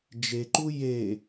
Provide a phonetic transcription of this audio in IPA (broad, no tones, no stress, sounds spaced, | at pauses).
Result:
d͡ʒ e ǃ u j e